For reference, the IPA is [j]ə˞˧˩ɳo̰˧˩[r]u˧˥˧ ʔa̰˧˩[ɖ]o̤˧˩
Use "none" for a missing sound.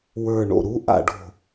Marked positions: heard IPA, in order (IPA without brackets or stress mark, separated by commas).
w, ɾ, ɖ